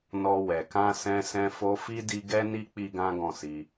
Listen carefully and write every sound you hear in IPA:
nɔ˧wɛ˨ kã˧sɛ̃˧sɛ̃˧ fo˧fi˦ di˦ ɡɛ˦ni˦ k͡pi˦ɡã˦ɡɔ̃˦˨si˧

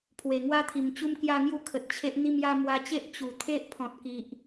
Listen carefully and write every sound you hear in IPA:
pʰwe˨˩ŋwa˦t̪ʰi˨˩m t͡ɕu˦mkja˦ŋju˦ kʰə˨t̚t͡ɕʰe˦ʔ n̪i˥˧mja˦ mwa˧t͡ɕe˦ʔ t͡ɕu˨˩t̪ʰe˦ʔpʰɔ̃˨t̚ki˨ʔ

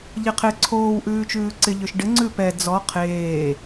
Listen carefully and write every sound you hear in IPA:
ʎeqʰɪ ǀʰoːw ʔʉːt͡ʃʉːǀɪ ʎʏʃɖɪ ŋ͡ǀʉpɛ d͡zɔ qʰeː

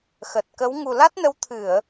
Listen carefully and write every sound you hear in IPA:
xə˨˩t̚kə˨˦w ŋu˨˩la˦˥t̚nə˨˦w t̪ʰɨ˧˩˨ə̯

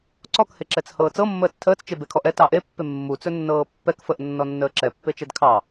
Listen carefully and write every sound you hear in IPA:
ǀɔkheǁɛt͡s hɤːt͡sɤmːəːt͡s tʰəːt͡st͡ʃe bekʰɔʔɛ tɑʔepːe mːu t͡sɵnːɤːpːɛk fəʔ nːɔnːəːǁɛpːe t͡ʃɛdkʰɑ

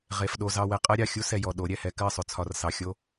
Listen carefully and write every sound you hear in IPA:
ʁe˨f ɗo˨zɑ˨wɛ˨qʼɜ˦ ɾʲɑ˨xʲu˦sɛ˨jɔ˨ ɗo˨˦ɾʲɛ˨hɛ˦ kɜ˦˨sˤʏ˨t͡sʰɒ˨r sɑ˨xʲo˦

